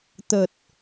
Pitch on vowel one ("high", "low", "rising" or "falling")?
low